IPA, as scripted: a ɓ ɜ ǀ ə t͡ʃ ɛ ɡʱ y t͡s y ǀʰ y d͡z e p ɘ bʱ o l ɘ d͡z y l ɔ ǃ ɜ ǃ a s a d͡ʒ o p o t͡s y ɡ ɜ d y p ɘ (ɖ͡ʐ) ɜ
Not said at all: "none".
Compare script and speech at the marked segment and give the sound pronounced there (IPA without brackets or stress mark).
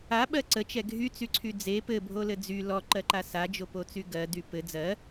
d͡z